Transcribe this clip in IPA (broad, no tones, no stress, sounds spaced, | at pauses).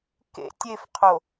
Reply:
k ḛ tʲ e f qʰ o